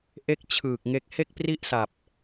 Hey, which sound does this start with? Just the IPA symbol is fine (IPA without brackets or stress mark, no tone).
ʔ